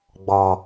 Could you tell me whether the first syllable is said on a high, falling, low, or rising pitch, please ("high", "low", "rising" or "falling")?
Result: low